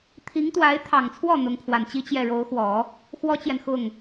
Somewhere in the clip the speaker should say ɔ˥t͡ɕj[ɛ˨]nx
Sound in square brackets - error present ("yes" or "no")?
no